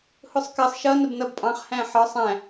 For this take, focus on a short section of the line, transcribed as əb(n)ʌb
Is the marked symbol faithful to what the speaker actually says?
yes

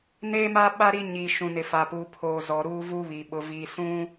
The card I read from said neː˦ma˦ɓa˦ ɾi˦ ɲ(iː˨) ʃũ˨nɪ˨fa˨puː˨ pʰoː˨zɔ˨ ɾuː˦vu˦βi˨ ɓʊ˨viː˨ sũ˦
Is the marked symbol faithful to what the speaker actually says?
no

